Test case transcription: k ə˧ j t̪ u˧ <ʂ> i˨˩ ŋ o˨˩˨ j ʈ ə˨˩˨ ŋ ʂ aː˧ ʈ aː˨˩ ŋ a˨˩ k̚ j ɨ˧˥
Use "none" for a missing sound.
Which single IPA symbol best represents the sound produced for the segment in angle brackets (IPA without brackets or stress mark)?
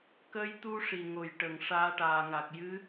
ʂ